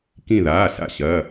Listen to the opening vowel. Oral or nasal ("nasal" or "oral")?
nasal